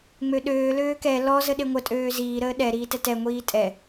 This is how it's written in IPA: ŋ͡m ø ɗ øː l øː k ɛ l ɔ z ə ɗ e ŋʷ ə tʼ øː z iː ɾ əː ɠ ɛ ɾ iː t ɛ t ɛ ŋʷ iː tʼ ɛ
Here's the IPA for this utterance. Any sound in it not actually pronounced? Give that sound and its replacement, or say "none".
ɠ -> ɗ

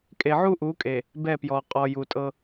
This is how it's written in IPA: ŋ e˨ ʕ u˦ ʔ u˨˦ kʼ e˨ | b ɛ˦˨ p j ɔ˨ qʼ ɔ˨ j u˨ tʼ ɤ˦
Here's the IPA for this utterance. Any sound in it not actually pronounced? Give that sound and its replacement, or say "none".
ŋ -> kʼ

